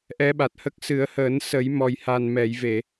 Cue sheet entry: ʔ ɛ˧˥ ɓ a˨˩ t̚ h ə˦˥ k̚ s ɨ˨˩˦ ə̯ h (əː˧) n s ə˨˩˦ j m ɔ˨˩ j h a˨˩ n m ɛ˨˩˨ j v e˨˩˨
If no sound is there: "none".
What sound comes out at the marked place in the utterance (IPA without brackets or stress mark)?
əː˨˩˦